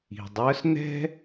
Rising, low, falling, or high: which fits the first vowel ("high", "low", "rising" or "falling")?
low